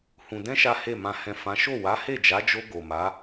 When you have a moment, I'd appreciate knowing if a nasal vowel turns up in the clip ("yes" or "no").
yes